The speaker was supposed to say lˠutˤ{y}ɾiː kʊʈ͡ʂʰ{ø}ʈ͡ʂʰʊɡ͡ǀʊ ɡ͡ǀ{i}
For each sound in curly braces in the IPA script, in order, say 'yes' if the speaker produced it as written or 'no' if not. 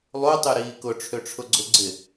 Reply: yes, yes, no

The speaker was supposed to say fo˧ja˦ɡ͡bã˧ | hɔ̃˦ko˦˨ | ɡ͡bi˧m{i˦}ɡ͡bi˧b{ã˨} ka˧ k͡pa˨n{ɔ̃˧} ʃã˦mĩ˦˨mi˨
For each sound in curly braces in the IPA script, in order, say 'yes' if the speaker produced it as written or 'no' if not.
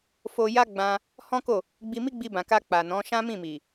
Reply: yes, yes, no

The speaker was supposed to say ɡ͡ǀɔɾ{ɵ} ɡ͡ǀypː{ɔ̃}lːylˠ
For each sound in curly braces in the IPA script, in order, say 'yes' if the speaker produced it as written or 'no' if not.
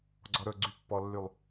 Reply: yes, no

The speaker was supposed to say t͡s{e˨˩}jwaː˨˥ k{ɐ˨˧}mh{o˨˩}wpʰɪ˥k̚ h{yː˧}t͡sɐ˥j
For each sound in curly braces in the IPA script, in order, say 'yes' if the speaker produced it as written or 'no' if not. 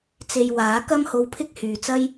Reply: no, no, no, no

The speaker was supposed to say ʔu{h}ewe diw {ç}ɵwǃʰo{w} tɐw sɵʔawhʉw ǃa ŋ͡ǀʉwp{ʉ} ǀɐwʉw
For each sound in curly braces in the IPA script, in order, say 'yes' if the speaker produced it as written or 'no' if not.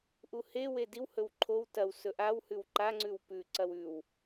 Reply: yes, no, yes, yes

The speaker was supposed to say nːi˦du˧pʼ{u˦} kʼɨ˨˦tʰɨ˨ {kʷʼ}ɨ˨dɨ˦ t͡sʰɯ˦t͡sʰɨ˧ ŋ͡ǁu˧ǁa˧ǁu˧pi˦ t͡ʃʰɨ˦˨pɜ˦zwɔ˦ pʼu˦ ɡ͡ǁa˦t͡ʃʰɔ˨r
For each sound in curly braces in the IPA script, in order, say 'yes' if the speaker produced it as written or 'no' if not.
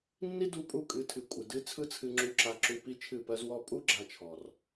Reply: no, yes

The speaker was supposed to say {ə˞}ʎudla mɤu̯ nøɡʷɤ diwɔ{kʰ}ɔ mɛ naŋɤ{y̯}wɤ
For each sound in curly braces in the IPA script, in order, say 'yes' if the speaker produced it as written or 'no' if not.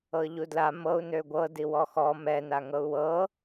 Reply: no, no, no

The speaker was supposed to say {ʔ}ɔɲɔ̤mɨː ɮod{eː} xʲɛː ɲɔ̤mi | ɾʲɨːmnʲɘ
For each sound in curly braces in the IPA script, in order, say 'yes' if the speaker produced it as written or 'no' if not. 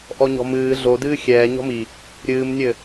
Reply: yes, no

